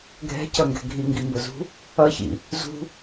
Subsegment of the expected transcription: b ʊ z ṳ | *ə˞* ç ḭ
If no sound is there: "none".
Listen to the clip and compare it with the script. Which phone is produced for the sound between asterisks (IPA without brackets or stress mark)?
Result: ʌ